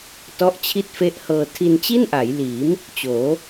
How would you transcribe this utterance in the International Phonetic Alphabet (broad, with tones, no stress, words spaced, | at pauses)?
tɔ˦˥ʔ t͡ɕʰi˥˩t̚fe˦˥ʔhɤː˧ tʰi˧nt͡ɕi˥˩nʔa˩˦j liː˩˦m | t͡ɕoː˩˦